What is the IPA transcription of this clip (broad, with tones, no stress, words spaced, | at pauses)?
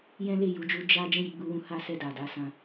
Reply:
jɛ̃˦le˦˨ju˧d͡ʒu˧ d͡ʒa˦ d͡ʒɛ̃˦˨ji˨˦ɡ͡bu˧wũ˧ ha˦sɛ˦˨ da˨da˨˦sã˧